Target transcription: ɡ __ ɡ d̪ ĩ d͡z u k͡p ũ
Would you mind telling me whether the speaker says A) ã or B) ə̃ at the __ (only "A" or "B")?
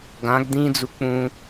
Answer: A